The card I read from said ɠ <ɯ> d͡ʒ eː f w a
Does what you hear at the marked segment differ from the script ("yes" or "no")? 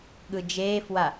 no